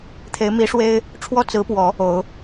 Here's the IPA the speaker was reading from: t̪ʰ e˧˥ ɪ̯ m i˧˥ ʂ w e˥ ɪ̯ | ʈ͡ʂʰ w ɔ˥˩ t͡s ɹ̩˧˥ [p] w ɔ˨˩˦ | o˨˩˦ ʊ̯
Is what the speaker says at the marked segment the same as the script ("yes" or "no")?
yes